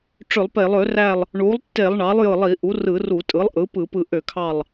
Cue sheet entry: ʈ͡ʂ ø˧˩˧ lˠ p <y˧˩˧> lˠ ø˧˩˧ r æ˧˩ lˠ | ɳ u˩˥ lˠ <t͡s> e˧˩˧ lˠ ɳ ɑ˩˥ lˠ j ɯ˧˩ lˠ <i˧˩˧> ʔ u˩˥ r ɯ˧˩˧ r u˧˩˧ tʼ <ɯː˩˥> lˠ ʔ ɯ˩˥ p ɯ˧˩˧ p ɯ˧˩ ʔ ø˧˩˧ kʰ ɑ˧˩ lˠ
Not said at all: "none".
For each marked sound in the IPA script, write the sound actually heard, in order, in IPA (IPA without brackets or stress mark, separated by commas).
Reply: e˧˩˧, tː, i˧˩˧, ɯ˩˥